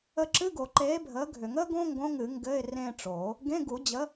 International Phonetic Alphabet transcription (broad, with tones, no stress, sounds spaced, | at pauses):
ə˦˨ ǁ ɨ˧˥˧ ɡ o˨˩˦ ǃ eː˨˥ bʱ əː˨˥ ɡʱ ʏ˨˩˦ ŋ əː˥ ɡ õ˥ ŋ ɡ õ˧˥˧ ŋ ɨ˨˩˦ ŋ ɡ ɘ˧˥˧ ɪ̯ r ẽː˦˨ ʈ͡ʂ o˨˩˦ | ɡ ẽ˧˥˧ ɡ u˨˩˦ d͡ʑ ə˨˥